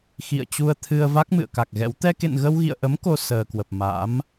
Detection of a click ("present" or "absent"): absent